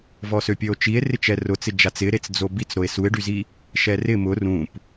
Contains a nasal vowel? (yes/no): yes